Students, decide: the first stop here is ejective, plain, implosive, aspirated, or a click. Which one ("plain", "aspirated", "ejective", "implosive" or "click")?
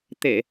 plain